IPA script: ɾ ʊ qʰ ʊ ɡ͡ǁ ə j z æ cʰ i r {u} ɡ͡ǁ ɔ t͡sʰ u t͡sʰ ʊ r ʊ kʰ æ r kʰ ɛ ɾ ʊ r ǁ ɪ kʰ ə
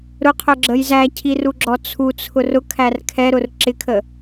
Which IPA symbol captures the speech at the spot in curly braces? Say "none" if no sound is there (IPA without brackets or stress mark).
u